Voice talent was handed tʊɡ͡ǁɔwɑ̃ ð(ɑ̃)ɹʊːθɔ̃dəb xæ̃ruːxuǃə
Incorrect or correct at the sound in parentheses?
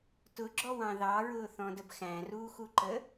incorrect: ɑ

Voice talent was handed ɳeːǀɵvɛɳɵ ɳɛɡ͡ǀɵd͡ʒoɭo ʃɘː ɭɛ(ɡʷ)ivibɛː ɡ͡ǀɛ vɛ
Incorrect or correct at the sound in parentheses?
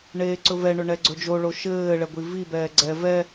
correct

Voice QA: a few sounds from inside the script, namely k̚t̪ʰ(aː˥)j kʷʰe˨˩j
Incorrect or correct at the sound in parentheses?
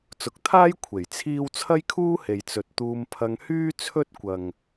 correct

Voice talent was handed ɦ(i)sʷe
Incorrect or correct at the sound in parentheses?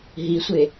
correct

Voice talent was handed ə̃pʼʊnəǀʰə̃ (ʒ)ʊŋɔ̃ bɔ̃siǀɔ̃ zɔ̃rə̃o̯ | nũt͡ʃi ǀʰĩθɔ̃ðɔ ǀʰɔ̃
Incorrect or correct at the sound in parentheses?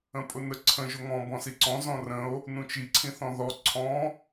correct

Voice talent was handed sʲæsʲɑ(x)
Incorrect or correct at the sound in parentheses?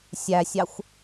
incorrect: xʷ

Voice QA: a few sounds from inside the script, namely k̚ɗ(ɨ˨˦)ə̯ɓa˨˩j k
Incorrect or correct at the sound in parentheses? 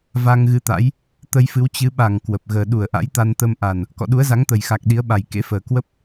incorrect: i˨˦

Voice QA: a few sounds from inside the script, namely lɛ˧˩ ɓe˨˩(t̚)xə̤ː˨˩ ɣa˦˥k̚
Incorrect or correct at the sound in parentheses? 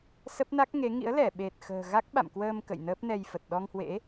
correct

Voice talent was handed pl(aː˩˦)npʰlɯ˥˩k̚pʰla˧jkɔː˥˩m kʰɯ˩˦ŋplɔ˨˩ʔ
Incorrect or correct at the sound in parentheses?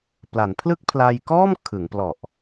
incorrect: a˩˦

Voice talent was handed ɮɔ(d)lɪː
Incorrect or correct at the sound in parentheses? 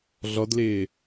correct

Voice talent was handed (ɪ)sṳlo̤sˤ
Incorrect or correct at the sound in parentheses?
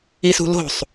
incorrect: i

